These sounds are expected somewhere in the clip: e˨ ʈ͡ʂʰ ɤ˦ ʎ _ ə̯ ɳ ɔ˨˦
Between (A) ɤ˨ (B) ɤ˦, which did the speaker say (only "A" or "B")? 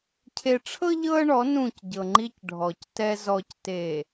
B